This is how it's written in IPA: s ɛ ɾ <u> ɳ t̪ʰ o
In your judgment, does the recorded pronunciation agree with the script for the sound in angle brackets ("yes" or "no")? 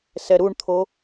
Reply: yes